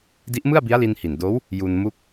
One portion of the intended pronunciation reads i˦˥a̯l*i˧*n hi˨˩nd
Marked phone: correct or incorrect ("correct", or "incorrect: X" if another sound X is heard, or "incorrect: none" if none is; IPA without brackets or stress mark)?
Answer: correct